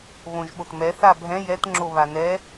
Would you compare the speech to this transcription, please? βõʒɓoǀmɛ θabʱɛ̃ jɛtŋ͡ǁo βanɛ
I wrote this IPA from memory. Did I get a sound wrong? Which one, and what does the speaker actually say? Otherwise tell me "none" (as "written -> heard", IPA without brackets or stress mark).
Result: ǀ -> t